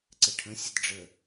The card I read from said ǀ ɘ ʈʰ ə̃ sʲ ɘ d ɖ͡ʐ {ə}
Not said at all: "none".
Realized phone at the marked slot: ə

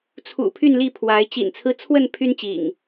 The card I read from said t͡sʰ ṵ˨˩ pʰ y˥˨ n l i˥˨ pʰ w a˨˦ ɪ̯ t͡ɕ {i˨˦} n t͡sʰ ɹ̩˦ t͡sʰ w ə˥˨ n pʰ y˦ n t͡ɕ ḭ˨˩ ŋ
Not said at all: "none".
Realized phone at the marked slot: ḭ˨˩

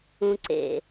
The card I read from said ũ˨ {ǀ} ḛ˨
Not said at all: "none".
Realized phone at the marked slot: ǀ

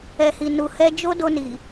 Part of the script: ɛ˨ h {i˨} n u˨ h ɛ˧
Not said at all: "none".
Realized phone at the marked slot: i˨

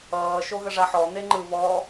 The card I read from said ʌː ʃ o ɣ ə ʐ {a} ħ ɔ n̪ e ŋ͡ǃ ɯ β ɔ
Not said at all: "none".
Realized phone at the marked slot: a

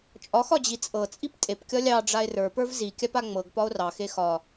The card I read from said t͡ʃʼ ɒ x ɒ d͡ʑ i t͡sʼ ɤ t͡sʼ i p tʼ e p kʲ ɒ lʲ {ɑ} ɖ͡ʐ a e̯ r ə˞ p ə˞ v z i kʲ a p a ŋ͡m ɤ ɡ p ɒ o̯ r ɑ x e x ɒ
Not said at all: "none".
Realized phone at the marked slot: ɑ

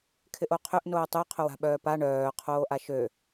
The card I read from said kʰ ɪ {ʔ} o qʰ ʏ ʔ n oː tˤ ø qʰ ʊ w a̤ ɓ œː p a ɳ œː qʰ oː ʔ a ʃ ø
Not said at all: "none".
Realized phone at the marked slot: ʔ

